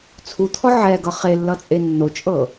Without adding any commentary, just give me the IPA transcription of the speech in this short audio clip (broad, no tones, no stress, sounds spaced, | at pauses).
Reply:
t͡sʰ u t̪ʰ ɔ ʕ ɛ ɡ ʌ χ e lː ʌ t͡sʼ e nː o t͡ʃʼ ɤ